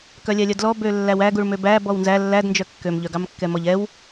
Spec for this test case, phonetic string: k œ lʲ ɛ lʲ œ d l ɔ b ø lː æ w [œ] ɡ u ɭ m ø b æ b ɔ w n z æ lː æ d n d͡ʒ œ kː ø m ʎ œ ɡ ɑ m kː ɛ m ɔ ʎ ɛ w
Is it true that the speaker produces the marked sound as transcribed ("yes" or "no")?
no